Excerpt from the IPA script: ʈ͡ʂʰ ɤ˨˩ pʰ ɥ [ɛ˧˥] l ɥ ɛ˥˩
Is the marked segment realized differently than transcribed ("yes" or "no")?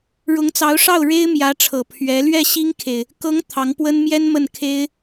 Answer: no